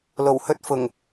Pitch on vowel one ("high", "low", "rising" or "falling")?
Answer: low